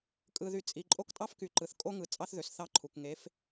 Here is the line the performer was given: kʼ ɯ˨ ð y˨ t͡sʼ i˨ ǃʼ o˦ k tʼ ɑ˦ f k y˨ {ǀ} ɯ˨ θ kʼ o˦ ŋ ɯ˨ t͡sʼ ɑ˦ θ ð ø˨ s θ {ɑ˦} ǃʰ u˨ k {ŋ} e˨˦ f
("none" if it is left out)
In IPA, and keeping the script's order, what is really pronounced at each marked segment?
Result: ǃ, ɑ˦, ŋ

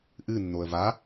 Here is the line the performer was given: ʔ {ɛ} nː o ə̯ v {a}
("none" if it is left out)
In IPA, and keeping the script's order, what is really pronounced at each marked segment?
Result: ɨ, a

